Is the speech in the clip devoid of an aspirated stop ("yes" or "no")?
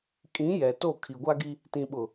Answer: no